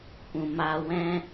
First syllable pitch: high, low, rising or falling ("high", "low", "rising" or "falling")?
low